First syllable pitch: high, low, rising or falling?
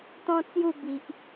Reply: high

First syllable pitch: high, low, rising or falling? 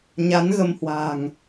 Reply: rising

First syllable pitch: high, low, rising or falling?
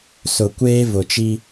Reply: low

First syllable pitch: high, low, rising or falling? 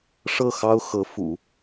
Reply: falling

